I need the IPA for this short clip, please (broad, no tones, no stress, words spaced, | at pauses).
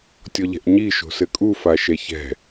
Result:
tʲɔʎɛ̤ʔɲi ʃo̤sɘkʼu faʃɛçɛ̤